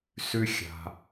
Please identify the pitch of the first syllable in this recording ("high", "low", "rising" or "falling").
high